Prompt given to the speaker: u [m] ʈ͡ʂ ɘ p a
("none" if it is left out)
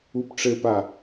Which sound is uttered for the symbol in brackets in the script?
p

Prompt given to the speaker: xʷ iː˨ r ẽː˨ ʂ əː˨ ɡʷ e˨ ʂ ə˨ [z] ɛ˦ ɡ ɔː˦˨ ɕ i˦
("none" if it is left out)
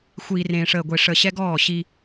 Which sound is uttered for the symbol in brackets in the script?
ɕ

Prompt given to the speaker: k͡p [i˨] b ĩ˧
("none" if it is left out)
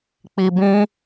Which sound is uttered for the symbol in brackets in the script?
i˨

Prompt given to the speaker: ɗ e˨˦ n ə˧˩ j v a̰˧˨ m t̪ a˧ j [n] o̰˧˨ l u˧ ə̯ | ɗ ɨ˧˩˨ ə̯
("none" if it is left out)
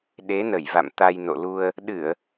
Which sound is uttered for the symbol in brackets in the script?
n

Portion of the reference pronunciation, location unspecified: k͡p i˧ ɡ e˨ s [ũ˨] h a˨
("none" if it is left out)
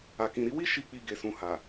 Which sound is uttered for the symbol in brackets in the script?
ũ˨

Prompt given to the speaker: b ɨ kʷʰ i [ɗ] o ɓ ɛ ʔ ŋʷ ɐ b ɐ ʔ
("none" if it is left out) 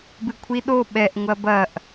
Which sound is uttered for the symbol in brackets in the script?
ɗ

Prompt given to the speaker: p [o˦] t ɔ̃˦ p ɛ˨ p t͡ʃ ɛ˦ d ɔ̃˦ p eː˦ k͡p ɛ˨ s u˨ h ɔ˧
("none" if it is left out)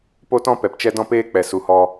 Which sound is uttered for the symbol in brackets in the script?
o˦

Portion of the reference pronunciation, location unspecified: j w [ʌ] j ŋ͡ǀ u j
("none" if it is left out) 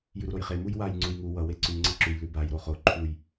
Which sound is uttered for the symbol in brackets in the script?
a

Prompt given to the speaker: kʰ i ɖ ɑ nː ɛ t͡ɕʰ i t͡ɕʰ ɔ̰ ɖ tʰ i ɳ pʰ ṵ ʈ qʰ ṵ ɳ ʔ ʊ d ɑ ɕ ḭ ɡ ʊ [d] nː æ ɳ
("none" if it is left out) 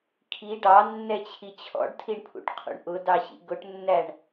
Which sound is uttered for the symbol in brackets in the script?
ʈ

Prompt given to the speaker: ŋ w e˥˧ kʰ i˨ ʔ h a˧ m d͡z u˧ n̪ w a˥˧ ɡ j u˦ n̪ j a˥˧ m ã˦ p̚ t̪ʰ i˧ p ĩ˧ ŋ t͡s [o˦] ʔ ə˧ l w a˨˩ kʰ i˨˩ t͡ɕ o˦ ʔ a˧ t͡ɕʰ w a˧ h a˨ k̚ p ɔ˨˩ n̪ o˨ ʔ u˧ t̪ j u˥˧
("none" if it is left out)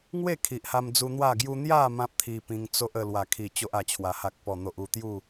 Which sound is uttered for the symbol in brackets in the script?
o˦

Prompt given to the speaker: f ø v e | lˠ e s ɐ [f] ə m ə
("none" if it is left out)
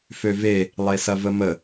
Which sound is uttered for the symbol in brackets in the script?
v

